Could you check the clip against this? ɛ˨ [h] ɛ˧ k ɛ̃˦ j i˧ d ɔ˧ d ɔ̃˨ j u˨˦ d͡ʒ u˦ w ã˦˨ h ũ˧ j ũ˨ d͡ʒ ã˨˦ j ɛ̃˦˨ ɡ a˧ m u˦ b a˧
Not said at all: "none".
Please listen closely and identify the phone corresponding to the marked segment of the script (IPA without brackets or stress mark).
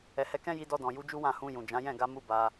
h